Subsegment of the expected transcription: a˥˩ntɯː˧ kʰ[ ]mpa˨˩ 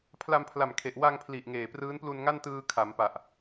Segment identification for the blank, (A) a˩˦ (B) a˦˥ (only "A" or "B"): A